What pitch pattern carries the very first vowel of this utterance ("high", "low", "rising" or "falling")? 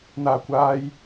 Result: low